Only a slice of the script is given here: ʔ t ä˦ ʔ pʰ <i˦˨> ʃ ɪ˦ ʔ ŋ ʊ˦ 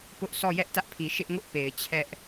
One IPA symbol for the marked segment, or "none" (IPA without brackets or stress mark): i˨